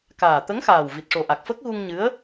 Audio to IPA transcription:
kaː˨˩t̪ə˧˥ŋxaː˨˩w vi˨˩t̚ʂo˨˩ʔa˨˩k̚fə˦˥k̚ ɣu˧ŋɲɨ˧˥ə̯

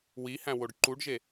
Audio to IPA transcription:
wihæ̃woɖ ǃuɖʒe

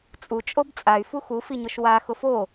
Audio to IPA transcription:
t͡sʼut͡ʃʼob t͡sʼay̯fu xufiɲʊʃ wa xʊfo

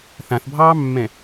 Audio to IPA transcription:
θãθbʱɑːmːɛ̃

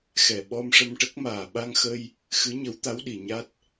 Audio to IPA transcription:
xɛ˨˩ ɓɔ˧m ʂə˧mʈə˦˥k̚maː˨˩ ɓa˧ŋxə˧j | xɨ˧˥ɲə˧˥wt̪a˧˥wɗi˨˩˨ ɲa˦˥t̚

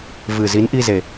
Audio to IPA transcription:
vɨ˨˩ zi˨˦nʔi˧ze˨˩

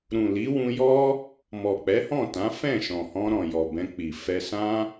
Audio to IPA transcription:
ɾũ˨li˨˦wũ˧jɔ˦ | mɔ˨k͡pɛ˨˦hɔ̃˦˨tã˨˦ fɛ̃˦˨ʃɔ̃˨hɔ̃˧ɾɔ̃˨ jɔ˨bɛ̃˧ k͡pi˨ fɛ˧sã˦

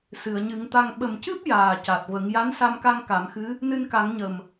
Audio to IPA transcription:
sɨ˨˩˨ə̯ɲɨ˨˩˦ŋt̪a˧ŋ ɓə˨˩mcɨ˦˥p̚ jaː˨˩ca˨˩t̚və˨˩˦ŋ ja˧˥nsa˧mka˧ŋ ka˨˩˦mxɨ˧˥ | nɨ˧nka˨˩˦ŋɲə˨˩m

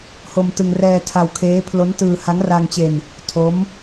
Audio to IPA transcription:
ho˧mtɯ˧ŋ rɛː˧tʰa˧wkʰeː˦˥ pʰlo˦˥ntɯː˧ ha˦˥ŋra˧ŋt͡ɕe˧n | tʰo˦˥m

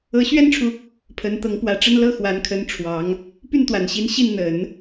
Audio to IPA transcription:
ɤ˧˥ɕɥɛ˥nʈ͡ʂʰu˨ | pʰə˧˥n t̪ɤ˧˥ŋpwä˧˥ʈ͡ʂə˥n lɤ˥˩xwa˧˥nkʰə˧˥n ʈ͡ʂʰwɑ˧˥ŋ | py˥˩nt̪wa˨˩nɕi˧˥n ɕi˥˩nn̪ə˨˩˦n

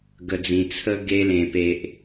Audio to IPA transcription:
ɡə˨˩d͡zĩ˨˩t͡sʰə˦ ɡe˧lẽ˨˩ pe˨ʔ

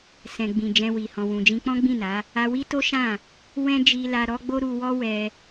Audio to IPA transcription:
sɛ̃˨ɡ͡bĩ˨ d͡ʒɛ̃˧wi˨ hɔ̃˨wũ˨d͡ʒĩ˧ k͡pɔ̃˦ɡ͡bĩ˦˨na˨˦ | a˧wi˦to˦ʃã˦˨ | wɛ̃˦d͡ʒi˧la˧ ɾɔ˦ɡ͡bo˦ɾu˧wɔ˦ wɛ˧

